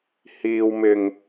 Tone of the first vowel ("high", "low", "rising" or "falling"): low